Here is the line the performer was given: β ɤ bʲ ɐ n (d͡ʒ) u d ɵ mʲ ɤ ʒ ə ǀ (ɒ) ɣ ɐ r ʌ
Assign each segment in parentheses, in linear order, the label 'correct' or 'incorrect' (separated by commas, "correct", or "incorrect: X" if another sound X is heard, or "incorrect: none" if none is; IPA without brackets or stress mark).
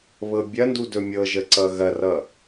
incorrect: d, incorrect: ʌ